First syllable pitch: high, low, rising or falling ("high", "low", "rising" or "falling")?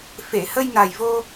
low